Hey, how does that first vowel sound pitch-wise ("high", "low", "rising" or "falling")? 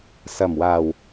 low